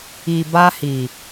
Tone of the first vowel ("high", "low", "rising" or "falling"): low